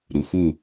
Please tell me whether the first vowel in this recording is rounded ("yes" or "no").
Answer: yes